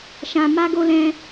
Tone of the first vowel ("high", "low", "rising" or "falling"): high